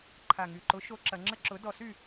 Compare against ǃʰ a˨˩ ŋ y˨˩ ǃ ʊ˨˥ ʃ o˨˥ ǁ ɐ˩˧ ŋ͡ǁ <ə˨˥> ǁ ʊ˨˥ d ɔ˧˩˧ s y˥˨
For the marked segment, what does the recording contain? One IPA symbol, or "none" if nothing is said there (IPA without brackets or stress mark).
ə˥˨